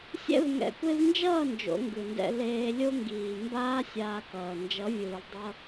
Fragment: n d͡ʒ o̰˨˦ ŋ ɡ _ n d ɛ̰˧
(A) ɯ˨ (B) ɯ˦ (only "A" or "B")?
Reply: A